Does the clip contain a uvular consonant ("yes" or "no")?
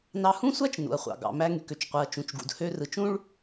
yes